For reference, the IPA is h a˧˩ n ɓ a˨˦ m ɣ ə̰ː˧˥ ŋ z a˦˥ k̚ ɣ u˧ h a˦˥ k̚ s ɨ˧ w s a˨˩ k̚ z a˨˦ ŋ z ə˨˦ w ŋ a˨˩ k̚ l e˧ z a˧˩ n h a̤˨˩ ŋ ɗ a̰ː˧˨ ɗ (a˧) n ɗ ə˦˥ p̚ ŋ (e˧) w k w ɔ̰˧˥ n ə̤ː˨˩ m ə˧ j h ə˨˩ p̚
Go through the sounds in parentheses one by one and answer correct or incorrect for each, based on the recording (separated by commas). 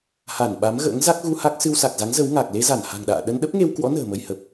incorrect, correct